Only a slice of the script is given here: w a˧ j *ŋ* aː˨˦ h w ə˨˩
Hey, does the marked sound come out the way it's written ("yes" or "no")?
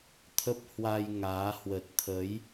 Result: yes